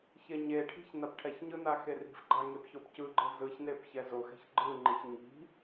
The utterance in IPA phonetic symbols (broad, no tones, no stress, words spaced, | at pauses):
çeɲeʈʰi̤ç napʈʰɛçɲɯ naxeri̤fɡ͡ǃa ŋepçopcɯɡ͡ǃɯ zɯçnep çɛzoxɛ̤ç ɡ͡ǃɯŋ͡ǃiç ɲi̤